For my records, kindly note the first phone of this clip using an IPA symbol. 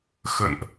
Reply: x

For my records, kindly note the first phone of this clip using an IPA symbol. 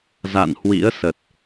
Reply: z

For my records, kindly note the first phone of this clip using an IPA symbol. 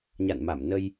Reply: ɲ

